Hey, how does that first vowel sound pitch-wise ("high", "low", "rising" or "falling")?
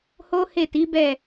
high